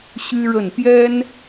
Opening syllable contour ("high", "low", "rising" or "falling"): high